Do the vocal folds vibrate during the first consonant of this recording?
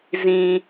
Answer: yes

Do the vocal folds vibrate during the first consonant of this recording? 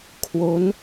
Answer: no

